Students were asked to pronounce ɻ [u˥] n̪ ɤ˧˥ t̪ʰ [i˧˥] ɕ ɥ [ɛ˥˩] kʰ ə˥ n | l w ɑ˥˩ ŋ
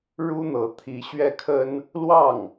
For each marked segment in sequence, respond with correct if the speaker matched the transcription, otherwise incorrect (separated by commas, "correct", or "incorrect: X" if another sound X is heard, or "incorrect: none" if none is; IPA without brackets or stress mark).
correct, correct, correct